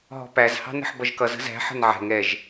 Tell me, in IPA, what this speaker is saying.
ɦ ɔ̤ p æ z h ɑ̤ n ə̤ ħ b ʌ ʒ k ʌ z ə̤ z æ̤ ħ ə̤ n ʕ ɛ̤ ŋ ɛ ʒ

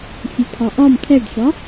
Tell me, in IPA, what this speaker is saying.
fʲ ɨ pʰ ɒ ʔ ɒ m tʰ ɛ ɖ ʃ ɒ

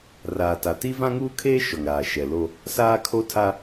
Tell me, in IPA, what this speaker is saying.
r aː˨ t a˨ t i˦ v ã˦ ŋ uː˦ kʰ eː˦ ʃ ɔ˨ ŋ ɾ aː˨ ʃ ɛ˨ l o˦ | s aː˦ kʰ o˦ tʰ a˦

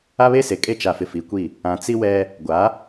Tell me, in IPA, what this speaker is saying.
a˦ β e˦ s e˨ kʼ e˦ t͡ʃ a˨ f ɪ˨ f i˨ kʷ i˦˨ | ã˨ t͡s i˦ w ɛ˦ | ɡʷ a˨˦

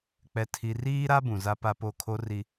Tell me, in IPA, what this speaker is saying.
k͡p ɛ˨ tʰ i˨ r iː˦ ɾ a˦ b ũ˨ z a˦ p a˦ p o˦˨ kʰ o˦ r i˦

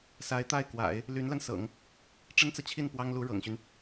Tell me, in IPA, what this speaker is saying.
s a˧˥ ɪ̯ t̪ a˥˩ ɪ̯ k w a̰˨˩˦ ɪ̯ | l y˧˥ n l a˧ n s ɤ̰˨˩˦ ŋ | ʈ͡ʂ ə˥ n t͡s ɤ˨ t͡ɕʰ i˥˩ n p w ɑ˥ ŋ l u˧˥ ɻ ɤ̰˨˩ ŋ ɕ y˦ n

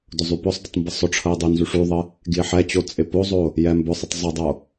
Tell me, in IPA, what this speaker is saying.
d ʊ zˤ y p ʊ sˤ d ə tˤ m b ə sˤ ʊ ʈ͡ʂʰ ə e̯ dˤ y n z y ʂ y ðˤ ə | ɡ j ɪ ħ ɛ t͡ɕ o t͡sʼ ɪ p o zˤ o | j ɛ m b ʊ sˤ ɪ tˤ zˤ ɪ dˤ o

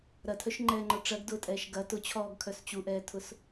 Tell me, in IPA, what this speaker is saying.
ɾ ɐ tʰ œ ʃ ŋ͡ǃ ɛː ŋ͡ǃ ɔ ʈ͡ʂ ɐ ɡ d ʊː tʼ ɛː ʃ ɡ ɐ t ʊ t͡ɕʰ ɔː ɡ kʰ œ s t͡ɕ u ʔ ɛː tʰ ʊ s

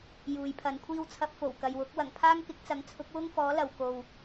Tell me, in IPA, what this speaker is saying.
j uː˨ j pʰ ɐ˨˧ n kʷʰ iː˥ w t͡sʰ ɐ˧ p̚ f o˨˩ w k ɐ˨ j w ʊ˨˥ k̚ w ɐ˨˩ ŋ pʰ aː˥ ŋ k ɪ˨˥ k̚ t͡s ɐ˨˧ ŋ t͡sʰ ʊ˨˥ k̚ w ʊ˥ ŋ f ɔː˨˥ l ɐ˨ w k o˨ w

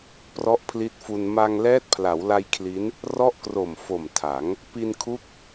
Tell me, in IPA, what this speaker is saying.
p r ɔ˦˥ ʔ pʰ l i˦˥ t̚ f u˧ n m a˧ ŋ l ɛː˦˥ t̚ pʰ l a˩˦ w l a˧ j kʰ l i˦˥ n | r ɔ˥˩ ʔ k r o˨˩ m f o˨˩ m tʰ a˩˦ ŋ | p i˧ n kʰ u˦˥ k̚

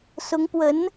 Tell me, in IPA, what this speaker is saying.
s ʊ˧˥ ŋ p w ə˧˥ n

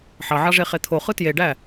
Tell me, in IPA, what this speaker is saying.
ħ ɑ ʕ ɑ ʐ e χ e t̪ʰ o χ ɯ t j e ɖ æ

